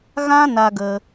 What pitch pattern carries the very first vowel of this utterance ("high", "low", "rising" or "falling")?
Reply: high